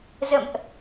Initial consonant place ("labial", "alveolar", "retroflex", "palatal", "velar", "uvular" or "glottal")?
alveolar